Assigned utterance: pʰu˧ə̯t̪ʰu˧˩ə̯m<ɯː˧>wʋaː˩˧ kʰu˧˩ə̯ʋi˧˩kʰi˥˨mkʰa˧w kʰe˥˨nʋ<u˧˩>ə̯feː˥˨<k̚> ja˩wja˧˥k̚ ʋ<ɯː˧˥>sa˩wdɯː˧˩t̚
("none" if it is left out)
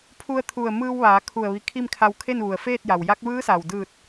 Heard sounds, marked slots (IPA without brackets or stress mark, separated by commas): ɯː˧, u˩, t̚, ɯː˧˥